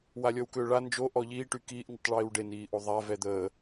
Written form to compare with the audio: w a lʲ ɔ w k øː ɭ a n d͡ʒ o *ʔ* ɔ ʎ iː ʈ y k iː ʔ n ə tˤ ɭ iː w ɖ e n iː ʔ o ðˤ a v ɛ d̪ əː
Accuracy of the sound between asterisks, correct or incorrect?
correct